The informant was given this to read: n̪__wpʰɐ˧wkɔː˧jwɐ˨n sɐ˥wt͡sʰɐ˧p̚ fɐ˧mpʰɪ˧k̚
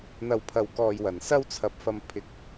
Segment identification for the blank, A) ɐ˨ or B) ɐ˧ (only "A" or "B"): B